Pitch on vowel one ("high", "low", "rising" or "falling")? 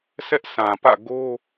high